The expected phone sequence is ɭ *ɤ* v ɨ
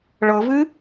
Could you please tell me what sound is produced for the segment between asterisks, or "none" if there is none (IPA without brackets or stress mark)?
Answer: ɤ